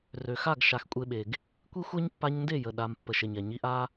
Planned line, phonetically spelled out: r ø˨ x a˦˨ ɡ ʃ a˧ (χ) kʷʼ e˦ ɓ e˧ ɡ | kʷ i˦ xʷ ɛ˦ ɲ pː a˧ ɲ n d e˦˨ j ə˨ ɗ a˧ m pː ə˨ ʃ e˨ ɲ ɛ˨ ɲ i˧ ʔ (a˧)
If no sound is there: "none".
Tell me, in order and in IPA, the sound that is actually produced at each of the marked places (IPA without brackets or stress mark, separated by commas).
x, a˦